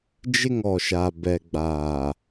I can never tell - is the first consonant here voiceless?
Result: no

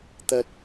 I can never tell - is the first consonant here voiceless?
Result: yes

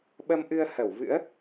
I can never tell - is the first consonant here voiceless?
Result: no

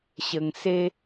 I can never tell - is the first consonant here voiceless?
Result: yes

